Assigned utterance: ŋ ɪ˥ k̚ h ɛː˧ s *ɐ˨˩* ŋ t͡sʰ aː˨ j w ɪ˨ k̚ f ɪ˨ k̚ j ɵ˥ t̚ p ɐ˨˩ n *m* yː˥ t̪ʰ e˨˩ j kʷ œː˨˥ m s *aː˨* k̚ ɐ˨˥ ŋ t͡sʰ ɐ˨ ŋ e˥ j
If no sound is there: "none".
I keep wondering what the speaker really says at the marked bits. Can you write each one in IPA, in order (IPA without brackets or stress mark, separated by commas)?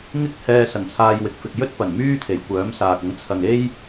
ɐ˨˩, m, aː˨